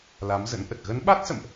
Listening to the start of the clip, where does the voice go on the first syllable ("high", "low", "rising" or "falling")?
rising